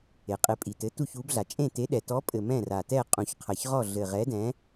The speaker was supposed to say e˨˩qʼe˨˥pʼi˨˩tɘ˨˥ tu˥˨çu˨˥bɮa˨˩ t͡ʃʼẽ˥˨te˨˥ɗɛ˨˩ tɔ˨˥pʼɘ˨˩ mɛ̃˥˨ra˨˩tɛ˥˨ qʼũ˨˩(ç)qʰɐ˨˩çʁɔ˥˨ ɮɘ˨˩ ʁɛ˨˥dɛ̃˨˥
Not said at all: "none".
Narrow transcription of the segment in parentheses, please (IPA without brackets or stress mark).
ç